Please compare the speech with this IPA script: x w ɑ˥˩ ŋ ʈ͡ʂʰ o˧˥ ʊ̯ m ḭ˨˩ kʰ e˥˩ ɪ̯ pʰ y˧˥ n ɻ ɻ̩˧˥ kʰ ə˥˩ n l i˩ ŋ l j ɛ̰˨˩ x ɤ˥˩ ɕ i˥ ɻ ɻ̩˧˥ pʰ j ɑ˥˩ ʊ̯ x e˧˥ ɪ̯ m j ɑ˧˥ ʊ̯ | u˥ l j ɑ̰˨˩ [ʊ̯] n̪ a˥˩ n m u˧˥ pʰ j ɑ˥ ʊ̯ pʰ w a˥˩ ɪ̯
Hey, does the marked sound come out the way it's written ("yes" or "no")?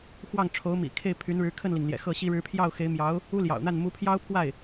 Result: yes